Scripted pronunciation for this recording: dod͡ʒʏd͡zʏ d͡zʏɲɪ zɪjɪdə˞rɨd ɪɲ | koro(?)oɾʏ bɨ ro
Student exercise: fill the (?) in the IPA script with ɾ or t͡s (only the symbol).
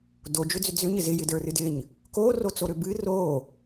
t͡s